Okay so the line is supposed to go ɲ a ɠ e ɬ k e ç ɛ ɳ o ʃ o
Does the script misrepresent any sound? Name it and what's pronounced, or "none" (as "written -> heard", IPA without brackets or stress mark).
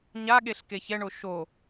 none